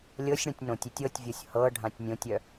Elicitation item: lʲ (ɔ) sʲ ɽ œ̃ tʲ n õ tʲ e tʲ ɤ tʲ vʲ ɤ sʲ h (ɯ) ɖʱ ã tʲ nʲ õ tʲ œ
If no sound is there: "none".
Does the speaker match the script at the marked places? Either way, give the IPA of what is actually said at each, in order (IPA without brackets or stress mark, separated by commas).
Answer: ɤ, ɤ